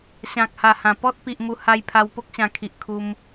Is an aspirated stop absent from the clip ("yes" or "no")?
no